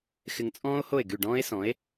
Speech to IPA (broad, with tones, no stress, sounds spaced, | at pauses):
x ɪ˧ ŋ t͡sʼ ɔ̃ː˥ o̯ h o˥˩ e̯ ɡ y˥˩ ɖ ɔ̃ː˥ e̯ s ɔ̃˩˥ e̯